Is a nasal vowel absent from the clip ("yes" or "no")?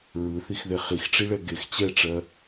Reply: yes